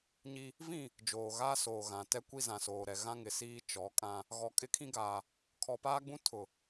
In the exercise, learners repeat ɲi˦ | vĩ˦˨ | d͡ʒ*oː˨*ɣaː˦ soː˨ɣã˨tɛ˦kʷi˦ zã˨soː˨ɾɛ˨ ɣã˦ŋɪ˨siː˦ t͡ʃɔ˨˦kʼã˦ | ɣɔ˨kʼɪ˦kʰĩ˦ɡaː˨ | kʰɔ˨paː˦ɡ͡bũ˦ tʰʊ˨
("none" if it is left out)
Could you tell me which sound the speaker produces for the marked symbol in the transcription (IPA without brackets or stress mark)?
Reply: oː˨